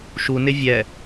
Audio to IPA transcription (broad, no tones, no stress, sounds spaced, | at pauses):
ʃ u n ɪ vʲ ɛ